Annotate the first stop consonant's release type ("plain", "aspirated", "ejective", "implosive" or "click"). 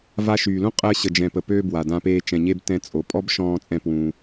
ejective